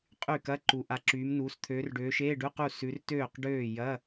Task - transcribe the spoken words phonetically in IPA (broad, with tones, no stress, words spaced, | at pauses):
qʼy˥˩kɐ˧˥˧ ǃu˨˦ ʔa˨˦ǁyː˨˦mnuː˨˦s t̪ʰøː˨˦rɖøː˨˦ʃeː˧˥˧ɖʉ˧˥˧ qu˥˩ sʉ˨˦rtøː˥˩qɖøː˥˩ jɐ˧˥˧